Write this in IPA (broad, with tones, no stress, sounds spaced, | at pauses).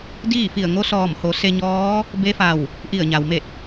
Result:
d iː˥˨ f i˧˩ ə̯ ŋ o˧˥ s ɔː˧˩ m h o˩˧ s e˧ ɲ ɔː˧˥ | b e˧˥ f a˧˩ w | ʔ i˧˩ ə̯ ɲ a˩ w m e˧˩ t̚